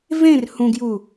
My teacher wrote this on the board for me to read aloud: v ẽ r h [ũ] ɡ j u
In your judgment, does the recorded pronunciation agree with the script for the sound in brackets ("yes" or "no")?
yes